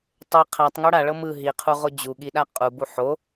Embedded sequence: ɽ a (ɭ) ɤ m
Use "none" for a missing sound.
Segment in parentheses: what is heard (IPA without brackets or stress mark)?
ɭ